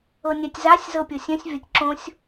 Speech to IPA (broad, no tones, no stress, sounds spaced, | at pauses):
ɤ nʲ a tʲ z a sʲ z ɤ pʲ ɤ sʲ œ̃ sʲ vʲ ɒ tʲ ǁ õ sʲ